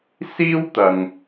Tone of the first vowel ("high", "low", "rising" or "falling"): high